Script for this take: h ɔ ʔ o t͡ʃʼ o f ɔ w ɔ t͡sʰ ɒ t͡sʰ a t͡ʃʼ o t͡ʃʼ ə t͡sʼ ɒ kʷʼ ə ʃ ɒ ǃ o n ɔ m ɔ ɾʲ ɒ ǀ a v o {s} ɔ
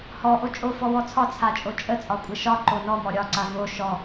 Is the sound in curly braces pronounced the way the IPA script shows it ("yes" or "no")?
no